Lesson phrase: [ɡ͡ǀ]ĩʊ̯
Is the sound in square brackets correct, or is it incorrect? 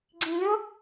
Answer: correct